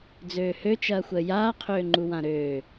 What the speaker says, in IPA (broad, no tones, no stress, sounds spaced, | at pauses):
d͡z øː h ø t͡ʃ ɐː xʷ əː j aː qʰ øː ŋ͡ǃ u w ã ɾ øː